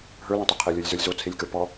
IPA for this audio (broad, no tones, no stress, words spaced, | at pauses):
ɦə˞lõtˤi qʰelʲɔlʲzə˞lʲzo t͡sʰelʲkə˞pɔ